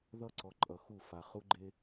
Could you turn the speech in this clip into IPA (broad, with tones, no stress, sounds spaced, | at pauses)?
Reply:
ð ʌ˦ ǀ ɔ˨ ǃʼ ʌ˨ x u˦˨ f a˨ χ u˦ ɡ͡ǃ e˦